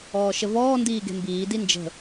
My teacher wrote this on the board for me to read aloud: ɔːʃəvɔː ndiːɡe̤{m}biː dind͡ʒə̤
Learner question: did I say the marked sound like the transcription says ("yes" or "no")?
yes